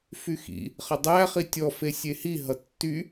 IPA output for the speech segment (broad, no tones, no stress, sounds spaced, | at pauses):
f y x ḭ | χ ʌ dˤ æ χ i tʲ ɔ f e sʲ e h i ɦ ʌ tː y